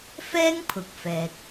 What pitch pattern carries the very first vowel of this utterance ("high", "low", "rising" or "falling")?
high